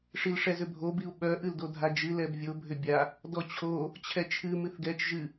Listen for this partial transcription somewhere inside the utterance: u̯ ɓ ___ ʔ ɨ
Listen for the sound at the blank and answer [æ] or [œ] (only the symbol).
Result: œ